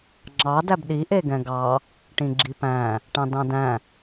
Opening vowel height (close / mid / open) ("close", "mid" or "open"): open